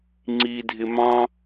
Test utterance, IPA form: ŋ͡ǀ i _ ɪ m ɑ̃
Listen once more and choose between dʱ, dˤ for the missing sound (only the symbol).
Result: dʱ